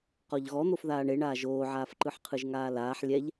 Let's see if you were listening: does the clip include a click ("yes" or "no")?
yes